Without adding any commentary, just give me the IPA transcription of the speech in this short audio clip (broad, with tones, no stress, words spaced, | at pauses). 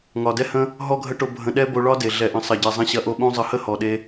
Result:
ŋɒ˨dɛ˦hə̃˦ | ɦɔ˦ɡʱə˦ʈo˧ bʱə̃˧ɗɛ˦ bo˧ɭɒ˦de˨ ɮɛ˨ʔə̃˨sˤɐ˨ɟɛ˨ zˤə̃˦ ɕɐ˧ʔo˧ɓõ˦ zˤə˧hə˦hɔ˨ɗe˧